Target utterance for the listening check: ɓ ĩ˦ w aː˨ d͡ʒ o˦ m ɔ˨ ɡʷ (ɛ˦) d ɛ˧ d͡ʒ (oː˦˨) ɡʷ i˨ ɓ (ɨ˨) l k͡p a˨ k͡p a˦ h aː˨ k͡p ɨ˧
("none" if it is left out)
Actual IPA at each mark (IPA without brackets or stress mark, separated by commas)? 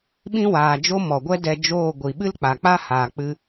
ɛ˦, oː˦˨, ɨ˦